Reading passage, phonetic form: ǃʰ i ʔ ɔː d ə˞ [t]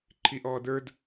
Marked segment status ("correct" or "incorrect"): incorrect